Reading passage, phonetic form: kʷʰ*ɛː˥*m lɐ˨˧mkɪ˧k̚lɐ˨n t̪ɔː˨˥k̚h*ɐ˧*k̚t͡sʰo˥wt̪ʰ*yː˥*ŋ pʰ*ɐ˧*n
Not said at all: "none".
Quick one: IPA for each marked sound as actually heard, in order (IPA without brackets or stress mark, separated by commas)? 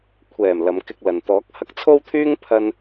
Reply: ɛː˨˩, ɐ˧, yː˥, ɐ˧